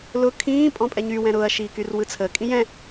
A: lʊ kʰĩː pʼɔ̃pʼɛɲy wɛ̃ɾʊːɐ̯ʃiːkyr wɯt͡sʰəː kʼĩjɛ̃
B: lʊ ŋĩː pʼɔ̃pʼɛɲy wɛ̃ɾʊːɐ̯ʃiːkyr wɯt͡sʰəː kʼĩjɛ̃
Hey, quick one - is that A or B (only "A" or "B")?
A